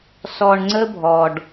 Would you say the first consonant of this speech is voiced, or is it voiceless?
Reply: voiceless